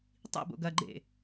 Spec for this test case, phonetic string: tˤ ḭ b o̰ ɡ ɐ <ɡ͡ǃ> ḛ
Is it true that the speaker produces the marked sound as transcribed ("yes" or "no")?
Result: yes